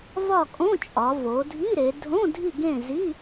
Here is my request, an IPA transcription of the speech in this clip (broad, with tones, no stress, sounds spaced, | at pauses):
v ɒ˦˨ kʼ õ˧˥˧ t͡ʃʼ ɒ˩˧ v o˩˧ dʱ i˧˥˧ ɾ e˩˧ dʱ õ˧˥˧ dʱ i˦˨ ɡ ẽ˦˨ z i˧˥˧